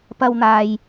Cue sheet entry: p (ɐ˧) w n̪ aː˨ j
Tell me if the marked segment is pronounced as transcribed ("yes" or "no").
yes